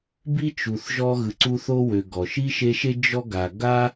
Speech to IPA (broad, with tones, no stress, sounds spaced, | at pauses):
b i˥ t͡ʃ u˨ θ ʒ ɔ˦ ɣ ɯ˨ ǀ u˦ θ o˥ w ø˨ ɡ ɔ˩ ʃ i˥ ʃ e˦ ʃ e˥ d͡ʒ ɔ˥ ɡ a˨ ɡ a˥